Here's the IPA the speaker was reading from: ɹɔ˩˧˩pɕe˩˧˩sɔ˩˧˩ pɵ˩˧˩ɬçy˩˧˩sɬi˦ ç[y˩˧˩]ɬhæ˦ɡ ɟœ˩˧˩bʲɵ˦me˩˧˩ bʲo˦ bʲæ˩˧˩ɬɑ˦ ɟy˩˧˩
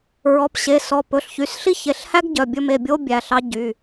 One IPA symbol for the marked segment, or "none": e˩˧˩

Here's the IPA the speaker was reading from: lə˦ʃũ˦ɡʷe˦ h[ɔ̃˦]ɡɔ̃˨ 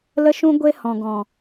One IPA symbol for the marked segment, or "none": ɔ̃˨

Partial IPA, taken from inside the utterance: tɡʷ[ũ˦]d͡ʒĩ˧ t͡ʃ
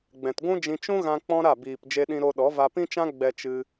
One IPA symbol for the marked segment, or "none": ũ˦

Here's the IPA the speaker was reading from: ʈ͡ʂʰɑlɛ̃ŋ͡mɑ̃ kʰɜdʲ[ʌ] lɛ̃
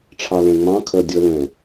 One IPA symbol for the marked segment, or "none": ʌ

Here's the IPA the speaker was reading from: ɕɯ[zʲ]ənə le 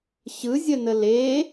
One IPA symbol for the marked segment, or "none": zʲ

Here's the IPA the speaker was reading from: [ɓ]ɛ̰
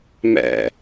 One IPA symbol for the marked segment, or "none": m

